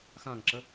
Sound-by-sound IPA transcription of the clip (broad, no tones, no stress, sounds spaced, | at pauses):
x ã ŋ ǁ ə